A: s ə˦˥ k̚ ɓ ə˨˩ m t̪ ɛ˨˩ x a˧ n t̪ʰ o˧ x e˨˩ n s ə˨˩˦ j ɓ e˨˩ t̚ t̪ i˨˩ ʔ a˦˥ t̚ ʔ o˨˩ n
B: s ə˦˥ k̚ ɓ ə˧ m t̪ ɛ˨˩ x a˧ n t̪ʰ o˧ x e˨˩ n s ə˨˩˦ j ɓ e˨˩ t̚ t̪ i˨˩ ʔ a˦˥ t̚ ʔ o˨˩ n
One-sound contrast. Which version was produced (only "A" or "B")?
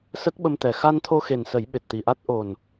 B